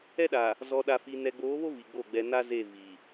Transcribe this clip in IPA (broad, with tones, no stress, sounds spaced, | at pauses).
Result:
ɛ˦ ɗ a˨ | z ɔ˨ ɗ a˨ f i˨ n ɛ˨ ɡ͡b oː˨˦ β o˦ v i˨ ɡ͡b o˦˨ ɡ͡b ɛ˨ n a˦ z e˦˨ v i˨